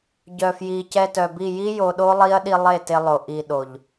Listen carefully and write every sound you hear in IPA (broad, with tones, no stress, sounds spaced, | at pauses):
ɟ œ˨ f j i˨ c ɛ˧ t œ˨ b i˦˨ j i˦ j o˧ ɗ o˦ lˠ i˦ ɐ̯ ɗ i˧ lˠ e˦˨ t e˧ lˠ o˨ ʔ i˨ ɗ o˨ ʎ